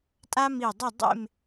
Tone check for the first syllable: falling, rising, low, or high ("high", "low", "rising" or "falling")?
high